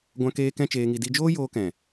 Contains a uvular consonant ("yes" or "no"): no